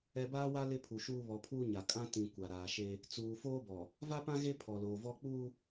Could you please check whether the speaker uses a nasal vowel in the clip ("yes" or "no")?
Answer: yes